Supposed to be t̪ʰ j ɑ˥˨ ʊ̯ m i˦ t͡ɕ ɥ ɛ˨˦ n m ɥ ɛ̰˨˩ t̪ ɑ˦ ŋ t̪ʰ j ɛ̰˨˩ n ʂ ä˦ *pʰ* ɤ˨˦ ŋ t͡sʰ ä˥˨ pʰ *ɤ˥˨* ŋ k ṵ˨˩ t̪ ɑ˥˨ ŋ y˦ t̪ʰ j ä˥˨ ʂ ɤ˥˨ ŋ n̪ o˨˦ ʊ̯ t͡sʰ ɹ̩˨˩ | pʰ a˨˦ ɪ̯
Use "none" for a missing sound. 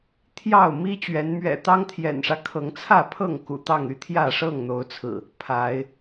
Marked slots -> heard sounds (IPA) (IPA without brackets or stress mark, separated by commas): kʰ, ɤ˥˨